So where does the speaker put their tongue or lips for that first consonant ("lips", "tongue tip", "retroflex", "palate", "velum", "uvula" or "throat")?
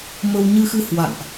lips